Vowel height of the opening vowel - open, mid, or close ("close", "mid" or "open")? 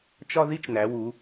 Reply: open